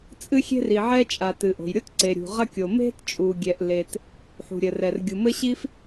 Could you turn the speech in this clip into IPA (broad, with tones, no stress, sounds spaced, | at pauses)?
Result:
t͡sʼ ɨ˥ xʲ e̤˥ r i˩ ʕ ɛ˥ t͡ʃʼ a˩ t ɨ˩ ʔ o̤˩ j ɾʲ o˥ t ǀ e˩ ɾʲ ṳ˩ ʁ ɐ˥ kʲ o˩ m e̤˥ t t͡ʃʼ u˩ ɡʲ ɛ˩ ʔ l e˩ t | ħ ṳ˩ ɾʲ ɘ˩ r ɛ˩ r ɡʲ u˩ m ɘ˥ ɕ i˥ f